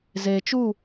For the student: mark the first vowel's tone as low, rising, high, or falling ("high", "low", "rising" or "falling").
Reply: low